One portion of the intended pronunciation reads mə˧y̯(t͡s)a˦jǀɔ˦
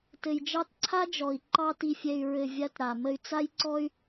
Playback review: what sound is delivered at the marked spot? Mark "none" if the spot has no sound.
t͡s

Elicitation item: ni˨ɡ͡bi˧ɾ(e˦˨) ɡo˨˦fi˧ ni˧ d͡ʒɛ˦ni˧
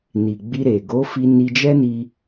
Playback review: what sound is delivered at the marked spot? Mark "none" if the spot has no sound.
e˨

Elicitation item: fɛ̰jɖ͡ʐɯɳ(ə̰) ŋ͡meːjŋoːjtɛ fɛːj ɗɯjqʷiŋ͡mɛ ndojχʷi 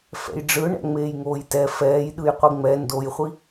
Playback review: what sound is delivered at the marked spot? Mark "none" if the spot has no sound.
ɛ̰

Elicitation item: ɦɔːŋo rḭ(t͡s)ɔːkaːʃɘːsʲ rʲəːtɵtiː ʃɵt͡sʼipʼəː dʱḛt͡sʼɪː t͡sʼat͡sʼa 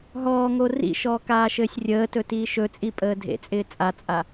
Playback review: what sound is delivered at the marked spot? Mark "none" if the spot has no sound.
ʃ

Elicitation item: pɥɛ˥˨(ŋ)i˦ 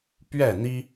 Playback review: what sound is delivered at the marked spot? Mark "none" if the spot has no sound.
n̪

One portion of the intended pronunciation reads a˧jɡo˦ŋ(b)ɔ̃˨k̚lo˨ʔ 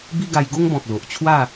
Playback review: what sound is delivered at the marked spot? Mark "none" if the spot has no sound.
b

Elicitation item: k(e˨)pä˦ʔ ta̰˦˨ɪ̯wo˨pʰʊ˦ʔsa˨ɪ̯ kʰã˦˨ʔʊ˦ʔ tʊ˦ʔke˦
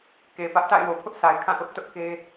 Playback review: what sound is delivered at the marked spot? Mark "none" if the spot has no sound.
e˨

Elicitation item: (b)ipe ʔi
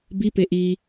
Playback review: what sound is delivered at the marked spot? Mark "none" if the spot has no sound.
b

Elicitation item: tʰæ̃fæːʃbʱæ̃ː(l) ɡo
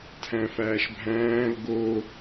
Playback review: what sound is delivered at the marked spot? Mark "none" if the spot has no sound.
l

